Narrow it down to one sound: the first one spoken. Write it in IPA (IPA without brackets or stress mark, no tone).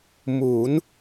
m